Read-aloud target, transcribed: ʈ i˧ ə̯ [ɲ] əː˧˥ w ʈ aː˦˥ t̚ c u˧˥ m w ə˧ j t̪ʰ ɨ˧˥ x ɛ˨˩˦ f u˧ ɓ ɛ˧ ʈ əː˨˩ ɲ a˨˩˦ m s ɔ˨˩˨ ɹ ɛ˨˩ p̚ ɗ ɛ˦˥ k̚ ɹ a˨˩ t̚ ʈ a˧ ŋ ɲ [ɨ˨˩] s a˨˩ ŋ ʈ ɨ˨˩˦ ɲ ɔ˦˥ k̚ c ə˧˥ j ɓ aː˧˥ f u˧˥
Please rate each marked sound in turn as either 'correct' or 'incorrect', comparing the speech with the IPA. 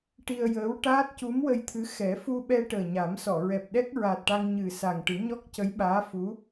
incorrect, correct

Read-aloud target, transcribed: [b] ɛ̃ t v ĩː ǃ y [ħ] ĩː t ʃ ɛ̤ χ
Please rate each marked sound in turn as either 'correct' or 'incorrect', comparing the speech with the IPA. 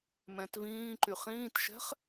incorrect, incorrect

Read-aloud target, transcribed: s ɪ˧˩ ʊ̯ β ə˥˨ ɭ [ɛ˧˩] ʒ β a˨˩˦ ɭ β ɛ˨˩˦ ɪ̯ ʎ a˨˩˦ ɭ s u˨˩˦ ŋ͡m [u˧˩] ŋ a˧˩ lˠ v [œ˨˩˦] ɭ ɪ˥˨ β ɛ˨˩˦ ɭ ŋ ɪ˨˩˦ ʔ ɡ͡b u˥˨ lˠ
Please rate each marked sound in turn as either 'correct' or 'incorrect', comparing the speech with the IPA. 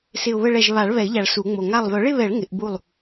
correct, incorrect, correct

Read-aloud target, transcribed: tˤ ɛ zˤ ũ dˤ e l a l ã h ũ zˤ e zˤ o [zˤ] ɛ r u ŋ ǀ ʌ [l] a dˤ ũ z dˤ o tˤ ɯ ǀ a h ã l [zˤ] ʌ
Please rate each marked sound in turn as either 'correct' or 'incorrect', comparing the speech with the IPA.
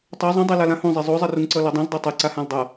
correct, correct, incorrect

